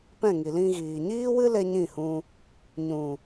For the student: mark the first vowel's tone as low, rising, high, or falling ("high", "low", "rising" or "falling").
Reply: falling